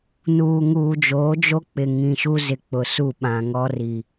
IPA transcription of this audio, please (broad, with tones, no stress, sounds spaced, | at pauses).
n uː˨ ŋ uː˨ d͡ʒ oː˨˦ d͡ʒ o˦ k͡p ɪ˨ ŋ ĩ˨ ʃ u˦ z ɪ˨ k͡p ʊ˨ s u˦˨ ɓ ã˨ ŋ ɔ˦ r i˨